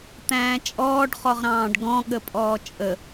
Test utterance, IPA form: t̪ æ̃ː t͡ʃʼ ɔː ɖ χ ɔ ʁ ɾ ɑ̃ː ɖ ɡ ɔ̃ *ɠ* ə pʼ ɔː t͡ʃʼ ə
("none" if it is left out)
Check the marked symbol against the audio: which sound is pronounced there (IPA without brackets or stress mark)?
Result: ɠ